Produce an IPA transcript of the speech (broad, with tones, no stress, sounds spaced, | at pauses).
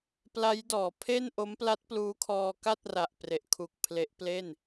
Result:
p l a˦˥ j d ɔː˩˦ pʰ e˥˩ n ʔ o˦˥ m p l a˦˥ t̚ p l uː˦˥ kʰ ɔː˧ k a˥˩ t̚ r a˨˩ ʔ p r e˨˩ ʔ kʰ u˨˩ k̚ pʰ l e˦˥ ʔ p l e˥˩ n